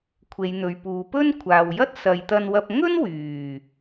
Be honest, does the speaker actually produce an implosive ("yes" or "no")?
no